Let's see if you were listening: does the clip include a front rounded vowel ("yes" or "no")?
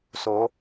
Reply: no